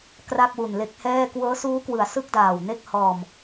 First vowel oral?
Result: yes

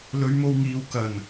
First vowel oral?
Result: yes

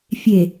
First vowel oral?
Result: yes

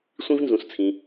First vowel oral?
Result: no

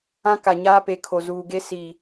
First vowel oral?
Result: no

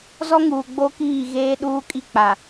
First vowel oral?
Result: yes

